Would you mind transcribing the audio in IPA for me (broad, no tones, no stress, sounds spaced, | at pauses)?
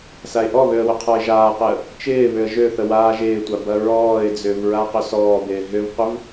s a ɪ̯ ʔ ɔ β ø ə̯ w ʏ qʰ ɔ ɪ̯ ʒ aː q ɪ ə̯ | t͡ʃ ɪː β ʏ ə̯ ʒ ø θ ə w aː ʒ ɪː tʷ a b ɐ ɹ ɔː ɪ̯ d͡z ʏː v ɹ a q ʏ s ɔː b ɪː ɦ ʏ v qʷ ɪ v